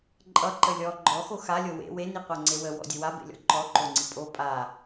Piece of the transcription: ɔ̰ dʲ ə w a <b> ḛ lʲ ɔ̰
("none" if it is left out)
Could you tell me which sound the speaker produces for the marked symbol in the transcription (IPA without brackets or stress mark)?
b